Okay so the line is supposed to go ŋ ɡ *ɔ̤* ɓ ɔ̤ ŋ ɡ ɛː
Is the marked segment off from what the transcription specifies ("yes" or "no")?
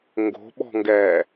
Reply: yes